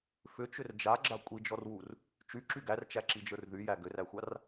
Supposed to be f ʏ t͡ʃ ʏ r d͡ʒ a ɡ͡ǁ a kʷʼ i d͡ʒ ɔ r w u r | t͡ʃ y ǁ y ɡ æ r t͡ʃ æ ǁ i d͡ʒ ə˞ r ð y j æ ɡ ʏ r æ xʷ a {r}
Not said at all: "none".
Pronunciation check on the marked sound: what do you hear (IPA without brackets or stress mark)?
r